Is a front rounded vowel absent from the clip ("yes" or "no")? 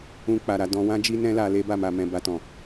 yes